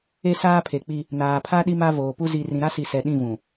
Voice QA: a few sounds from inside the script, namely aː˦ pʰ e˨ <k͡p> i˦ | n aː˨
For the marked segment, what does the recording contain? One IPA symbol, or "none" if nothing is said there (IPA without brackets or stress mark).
k͡p